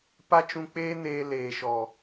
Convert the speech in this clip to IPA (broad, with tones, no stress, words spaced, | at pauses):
pa˦t͡ʃũ˧k͡peː˦neː˧ leː˨ʃɔ˨